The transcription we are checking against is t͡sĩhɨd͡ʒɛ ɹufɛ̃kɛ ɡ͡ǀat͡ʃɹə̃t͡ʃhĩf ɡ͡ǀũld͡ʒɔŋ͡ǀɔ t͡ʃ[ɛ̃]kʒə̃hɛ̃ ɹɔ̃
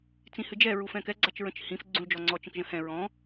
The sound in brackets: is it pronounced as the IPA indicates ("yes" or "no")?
no